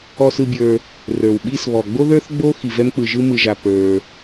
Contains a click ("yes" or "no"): no